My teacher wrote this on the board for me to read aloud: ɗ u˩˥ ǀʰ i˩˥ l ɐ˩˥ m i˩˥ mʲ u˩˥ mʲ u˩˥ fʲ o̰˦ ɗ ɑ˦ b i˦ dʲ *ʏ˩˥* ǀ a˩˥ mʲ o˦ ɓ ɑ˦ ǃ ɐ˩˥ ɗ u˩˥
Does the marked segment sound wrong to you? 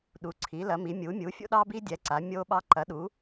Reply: yes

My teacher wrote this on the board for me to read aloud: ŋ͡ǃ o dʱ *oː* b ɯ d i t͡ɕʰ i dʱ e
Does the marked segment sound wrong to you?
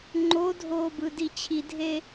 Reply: no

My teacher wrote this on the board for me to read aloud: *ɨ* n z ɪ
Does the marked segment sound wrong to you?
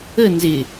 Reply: yes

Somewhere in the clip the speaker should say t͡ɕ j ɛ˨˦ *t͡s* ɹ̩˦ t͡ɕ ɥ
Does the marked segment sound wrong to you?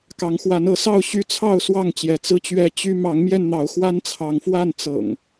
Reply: no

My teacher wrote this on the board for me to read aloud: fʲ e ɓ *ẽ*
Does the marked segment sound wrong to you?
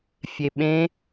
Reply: no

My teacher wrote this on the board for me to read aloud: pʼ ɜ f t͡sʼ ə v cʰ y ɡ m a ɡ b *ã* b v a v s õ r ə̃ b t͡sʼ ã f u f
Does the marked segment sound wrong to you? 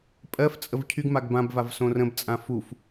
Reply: no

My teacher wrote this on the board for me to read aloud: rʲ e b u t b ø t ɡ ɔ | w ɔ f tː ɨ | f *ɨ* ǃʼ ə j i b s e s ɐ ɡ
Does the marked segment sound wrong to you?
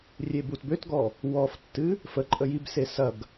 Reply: yes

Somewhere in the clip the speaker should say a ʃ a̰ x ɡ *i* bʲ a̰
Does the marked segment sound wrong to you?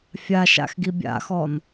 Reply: no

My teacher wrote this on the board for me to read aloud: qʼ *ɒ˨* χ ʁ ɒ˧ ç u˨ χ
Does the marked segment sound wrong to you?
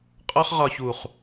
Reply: yes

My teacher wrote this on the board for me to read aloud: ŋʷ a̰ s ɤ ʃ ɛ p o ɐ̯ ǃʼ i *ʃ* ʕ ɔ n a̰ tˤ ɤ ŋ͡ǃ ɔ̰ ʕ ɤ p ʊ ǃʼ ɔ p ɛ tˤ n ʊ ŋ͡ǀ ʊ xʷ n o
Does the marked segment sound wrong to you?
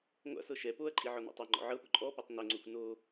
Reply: yes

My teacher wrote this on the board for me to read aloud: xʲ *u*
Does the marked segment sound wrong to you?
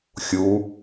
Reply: no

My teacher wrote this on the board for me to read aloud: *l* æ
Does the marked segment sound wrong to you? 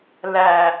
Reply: no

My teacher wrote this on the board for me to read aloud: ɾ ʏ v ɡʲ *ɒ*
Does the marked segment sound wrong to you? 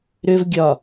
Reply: no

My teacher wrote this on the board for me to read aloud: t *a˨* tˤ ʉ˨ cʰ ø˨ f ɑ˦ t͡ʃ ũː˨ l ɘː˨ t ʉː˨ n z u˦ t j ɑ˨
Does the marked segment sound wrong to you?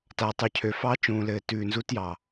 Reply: no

